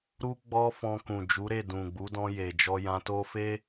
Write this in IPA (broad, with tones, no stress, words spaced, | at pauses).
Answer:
ɾu˦ ɡ͡bɔ˦fɔ̃˧ kũ˨d͡ʒu˨˦ɾe˦˨ dũ˨ɡ͡bu˨˦dɔ̃˧ je˨d͡ʒɔ˧jã˧to˦ fe˦